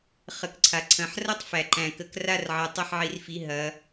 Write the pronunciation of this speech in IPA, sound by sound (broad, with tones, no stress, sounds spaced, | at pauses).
χ ə˩˧˩ k ǀʰ a˩ ǀʰ ɐ̃˩˧˩ ħ r ɐ˦˨ tˤ f æ˩ ǃ æ̃˩ k ə˩˧˩ k r a˦˨ r ʕ ɐ˩˧ tˤ ɐ˦˨ ħ ʕ i˩˧ r f i˩˧˩ ɦ ɐ˩˧